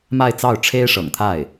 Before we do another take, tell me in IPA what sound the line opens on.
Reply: m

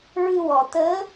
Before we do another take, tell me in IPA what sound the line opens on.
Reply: ɹ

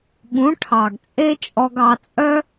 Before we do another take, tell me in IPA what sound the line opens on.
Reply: ɠ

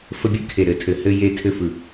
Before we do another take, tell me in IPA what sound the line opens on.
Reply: f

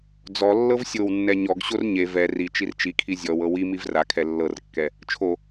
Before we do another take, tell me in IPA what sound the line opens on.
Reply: d͡z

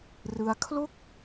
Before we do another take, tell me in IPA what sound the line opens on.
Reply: r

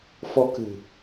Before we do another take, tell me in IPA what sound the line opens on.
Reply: f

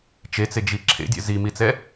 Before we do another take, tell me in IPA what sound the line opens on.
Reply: t͡ʃ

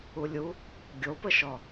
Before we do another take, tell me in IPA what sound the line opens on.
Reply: u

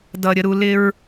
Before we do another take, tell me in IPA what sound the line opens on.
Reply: d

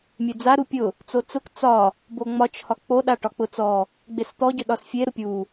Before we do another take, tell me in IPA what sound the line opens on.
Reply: mʲ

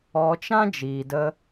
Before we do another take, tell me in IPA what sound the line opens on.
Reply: ɔ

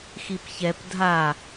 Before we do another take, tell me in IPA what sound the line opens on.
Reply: x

